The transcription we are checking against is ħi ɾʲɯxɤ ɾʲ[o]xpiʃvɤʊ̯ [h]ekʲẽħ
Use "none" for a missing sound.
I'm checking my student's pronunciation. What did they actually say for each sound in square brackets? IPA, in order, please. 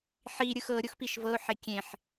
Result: o, ħ

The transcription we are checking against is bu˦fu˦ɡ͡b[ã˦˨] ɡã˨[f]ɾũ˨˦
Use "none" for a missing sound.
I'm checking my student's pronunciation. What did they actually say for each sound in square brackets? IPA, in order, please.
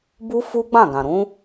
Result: ã˦˨, none

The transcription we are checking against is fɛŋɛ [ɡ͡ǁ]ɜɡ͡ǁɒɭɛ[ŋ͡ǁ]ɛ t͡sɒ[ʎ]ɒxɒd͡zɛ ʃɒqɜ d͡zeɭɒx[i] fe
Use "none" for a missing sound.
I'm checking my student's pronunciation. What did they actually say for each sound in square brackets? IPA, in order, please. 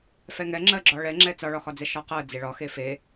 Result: ŋ͡ǁ, ŋ͡ǁ, ɭ, e

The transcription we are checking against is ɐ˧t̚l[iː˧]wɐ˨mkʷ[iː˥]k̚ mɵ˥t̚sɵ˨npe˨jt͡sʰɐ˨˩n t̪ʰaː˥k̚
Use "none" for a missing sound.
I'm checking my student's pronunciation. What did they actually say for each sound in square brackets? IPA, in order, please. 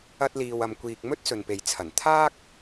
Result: iː˨, iː˨

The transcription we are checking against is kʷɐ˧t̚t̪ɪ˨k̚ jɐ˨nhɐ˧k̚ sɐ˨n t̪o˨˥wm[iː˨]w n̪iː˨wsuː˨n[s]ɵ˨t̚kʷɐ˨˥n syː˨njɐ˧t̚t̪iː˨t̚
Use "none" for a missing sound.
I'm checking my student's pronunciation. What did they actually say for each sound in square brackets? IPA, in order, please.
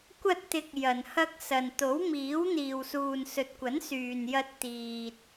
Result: iː˨˥, s

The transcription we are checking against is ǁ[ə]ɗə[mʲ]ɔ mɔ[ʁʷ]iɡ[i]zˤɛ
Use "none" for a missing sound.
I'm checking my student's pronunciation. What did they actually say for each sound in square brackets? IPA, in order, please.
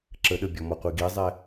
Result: ə, bʲ, qʷ, i

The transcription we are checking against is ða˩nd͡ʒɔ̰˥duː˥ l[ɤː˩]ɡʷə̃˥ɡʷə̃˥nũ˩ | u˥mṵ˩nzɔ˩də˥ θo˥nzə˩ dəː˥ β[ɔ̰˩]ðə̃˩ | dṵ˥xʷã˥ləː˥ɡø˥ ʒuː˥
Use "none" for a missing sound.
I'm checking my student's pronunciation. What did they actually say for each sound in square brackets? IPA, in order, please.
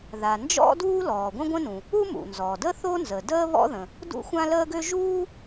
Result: ɔː˩, ɔ̰˥

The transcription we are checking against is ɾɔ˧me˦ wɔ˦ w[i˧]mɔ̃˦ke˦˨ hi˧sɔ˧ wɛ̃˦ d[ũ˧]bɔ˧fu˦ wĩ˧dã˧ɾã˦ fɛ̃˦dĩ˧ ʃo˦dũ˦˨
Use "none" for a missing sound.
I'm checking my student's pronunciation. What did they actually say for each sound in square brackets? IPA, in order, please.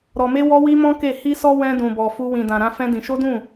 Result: i˦, ũ˧

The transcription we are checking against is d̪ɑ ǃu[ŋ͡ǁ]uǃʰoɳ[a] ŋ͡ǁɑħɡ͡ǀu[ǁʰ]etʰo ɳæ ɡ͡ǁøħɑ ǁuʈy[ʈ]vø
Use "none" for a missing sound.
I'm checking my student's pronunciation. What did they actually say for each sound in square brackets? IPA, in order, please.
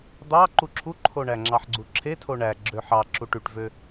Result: ǁʰ, æ, ǁʰ, ʈ

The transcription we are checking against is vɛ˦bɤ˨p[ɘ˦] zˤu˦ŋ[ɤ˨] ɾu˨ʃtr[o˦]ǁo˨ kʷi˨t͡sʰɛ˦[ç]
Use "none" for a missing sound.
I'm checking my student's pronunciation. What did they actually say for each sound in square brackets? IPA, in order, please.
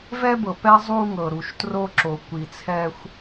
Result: ɛ˦, ɤ˨, o˦, xʷ

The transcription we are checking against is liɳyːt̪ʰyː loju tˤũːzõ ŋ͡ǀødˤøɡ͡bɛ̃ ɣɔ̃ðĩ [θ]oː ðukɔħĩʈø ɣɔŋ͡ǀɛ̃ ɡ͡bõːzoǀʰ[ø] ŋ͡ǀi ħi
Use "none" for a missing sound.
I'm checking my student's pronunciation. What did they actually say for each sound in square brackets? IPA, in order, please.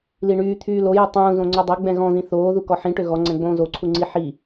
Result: θ, u

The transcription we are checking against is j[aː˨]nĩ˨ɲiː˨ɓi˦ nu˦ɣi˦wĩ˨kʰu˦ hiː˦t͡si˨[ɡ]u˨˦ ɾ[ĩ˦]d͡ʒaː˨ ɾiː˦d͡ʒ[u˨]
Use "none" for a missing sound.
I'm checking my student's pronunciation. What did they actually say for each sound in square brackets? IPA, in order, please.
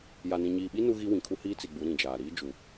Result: a˨, ɡ͡b, ĩ˨, u˨

